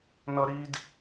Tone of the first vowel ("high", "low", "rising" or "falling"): high